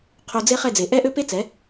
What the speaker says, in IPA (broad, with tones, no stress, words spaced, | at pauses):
qʰo˧d͡ze˦χɛ˦˨ d͡ze˨ ʔɛ˦ʔø˦ pe˦t͡sɛ˨˦